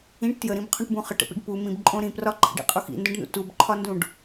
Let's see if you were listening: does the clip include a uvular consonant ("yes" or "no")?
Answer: yes